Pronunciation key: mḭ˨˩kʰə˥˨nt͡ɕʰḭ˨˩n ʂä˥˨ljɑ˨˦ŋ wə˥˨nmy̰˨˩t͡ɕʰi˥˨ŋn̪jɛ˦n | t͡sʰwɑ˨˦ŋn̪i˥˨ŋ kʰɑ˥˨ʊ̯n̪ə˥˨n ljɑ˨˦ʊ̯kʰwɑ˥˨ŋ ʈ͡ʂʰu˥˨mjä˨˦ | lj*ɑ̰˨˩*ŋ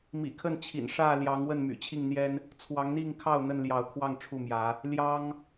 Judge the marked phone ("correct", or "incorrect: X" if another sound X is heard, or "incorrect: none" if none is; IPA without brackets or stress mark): incorrect: ɑ˦